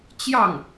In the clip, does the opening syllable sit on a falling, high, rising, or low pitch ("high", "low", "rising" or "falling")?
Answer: falling